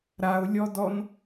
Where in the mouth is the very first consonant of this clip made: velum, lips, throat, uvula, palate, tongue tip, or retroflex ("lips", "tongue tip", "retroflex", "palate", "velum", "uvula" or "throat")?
tongue tip